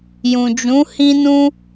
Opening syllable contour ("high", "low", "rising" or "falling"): low